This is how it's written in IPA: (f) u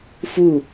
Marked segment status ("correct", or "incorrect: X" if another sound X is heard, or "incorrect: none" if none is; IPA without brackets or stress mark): correct